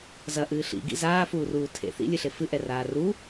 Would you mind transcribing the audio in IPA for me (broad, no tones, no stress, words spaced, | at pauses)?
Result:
zɐʔɨː ɬḭɡḭ zaːfuːruː tʰḛ θḭlʲɨɬe fɨʔɛraː ru